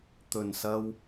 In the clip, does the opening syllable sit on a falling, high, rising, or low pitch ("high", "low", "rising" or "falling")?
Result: low